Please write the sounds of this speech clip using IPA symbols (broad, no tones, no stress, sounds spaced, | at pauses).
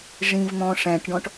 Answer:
ʐ ĩ v n̪ ɔ̃ ʂ æ̃ ʈ ɖ ɔ̃ ʈ